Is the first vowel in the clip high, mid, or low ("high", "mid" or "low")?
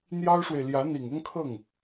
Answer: low